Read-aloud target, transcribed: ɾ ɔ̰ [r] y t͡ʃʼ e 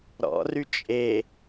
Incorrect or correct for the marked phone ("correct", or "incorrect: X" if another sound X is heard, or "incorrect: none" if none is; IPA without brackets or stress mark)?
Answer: correct